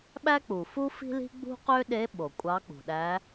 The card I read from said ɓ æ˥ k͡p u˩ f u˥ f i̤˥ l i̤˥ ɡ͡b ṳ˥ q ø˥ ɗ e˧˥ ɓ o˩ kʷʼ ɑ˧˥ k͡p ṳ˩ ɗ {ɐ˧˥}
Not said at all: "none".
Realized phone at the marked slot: æ˧˥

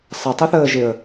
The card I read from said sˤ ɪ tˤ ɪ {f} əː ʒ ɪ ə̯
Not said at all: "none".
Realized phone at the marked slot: θ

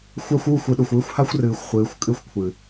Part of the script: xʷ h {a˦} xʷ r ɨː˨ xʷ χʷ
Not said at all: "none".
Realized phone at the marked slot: a˦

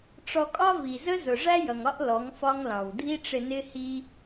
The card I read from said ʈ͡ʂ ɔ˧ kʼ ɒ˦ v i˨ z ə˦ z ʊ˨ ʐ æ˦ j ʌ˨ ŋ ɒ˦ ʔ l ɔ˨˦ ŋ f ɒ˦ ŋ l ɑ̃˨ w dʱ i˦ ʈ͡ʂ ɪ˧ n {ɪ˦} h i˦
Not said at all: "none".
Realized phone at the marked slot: ɪ˦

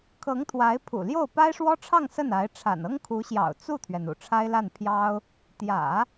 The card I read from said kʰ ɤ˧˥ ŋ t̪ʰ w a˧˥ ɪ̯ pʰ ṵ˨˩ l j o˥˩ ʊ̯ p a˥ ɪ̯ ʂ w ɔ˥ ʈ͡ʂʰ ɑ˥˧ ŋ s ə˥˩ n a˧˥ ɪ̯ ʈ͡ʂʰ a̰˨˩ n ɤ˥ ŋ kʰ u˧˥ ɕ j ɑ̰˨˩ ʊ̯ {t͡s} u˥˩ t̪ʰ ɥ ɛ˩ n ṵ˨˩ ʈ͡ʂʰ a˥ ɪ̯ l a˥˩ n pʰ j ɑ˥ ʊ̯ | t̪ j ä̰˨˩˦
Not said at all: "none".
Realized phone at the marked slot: t͡s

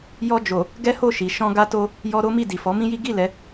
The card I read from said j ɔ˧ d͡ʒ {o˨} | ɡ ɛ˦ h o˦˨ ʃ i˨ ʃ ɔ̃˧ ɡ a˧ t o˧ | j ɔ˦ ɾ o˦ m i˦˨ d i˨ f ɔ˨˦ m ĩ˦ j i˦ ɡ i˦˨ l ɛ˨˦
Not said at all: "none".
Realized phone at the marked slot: o˨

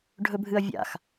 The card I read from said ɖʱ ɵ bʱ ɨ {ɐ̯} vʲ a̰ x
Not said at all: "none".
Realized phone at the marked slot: ɐ̯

